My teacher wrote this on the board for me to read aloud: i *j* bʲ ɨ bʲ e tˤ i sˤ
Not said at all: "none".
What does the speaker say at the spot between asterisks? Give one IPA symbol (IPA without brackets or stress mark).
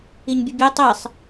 ɲ